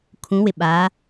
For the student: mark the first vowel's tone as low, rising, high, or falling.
rising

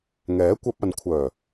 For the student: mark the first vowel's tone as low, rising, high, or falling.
rising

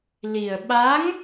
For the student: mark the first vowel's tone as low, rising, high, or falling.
low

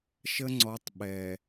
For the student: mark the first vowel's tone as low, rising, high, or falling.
high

